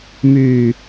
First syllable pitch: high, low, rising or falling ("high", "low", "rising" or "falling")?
low